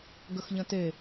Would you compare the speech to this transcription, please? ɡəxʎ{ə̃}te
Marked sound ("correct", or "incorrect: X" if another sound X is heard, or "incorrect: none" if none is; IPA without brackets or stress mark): correct